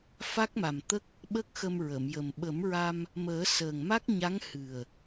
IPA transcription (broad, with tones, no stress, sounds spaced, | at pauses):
f a˦˥ k̚ m a˨˩ m t̪ ə˦˥ k̚ | ɓ ə˦˥ k̚ x ə˧ m ɹ ə˨˩˨ m j ə˨˩ m ɓ ə˨˩˦ m ɹ a˧ m | m əː˨˩˦ s əː˨˩ ŋ m a˦˥ k̚ ɲ a˧˥ ŋ h ɨ˨˩ ə̯